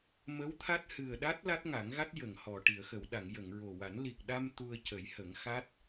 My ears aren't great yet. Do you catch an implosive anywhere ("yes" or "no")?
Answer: yes